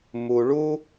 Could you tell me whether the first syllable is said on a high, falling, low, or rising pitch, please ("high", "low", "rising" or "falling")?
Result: low